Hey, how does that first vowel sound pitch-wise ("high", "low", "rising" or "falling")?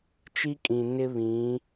high